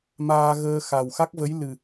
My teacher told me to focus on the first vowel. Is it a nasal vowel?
no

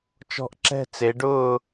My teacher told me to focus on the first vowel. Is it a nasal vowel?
no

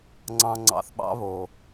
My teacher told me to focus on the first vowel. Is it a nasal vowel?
yes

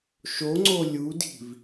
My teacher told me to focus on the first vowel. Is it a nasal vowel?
no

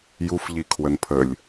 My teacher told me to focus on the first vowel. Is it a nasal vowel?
no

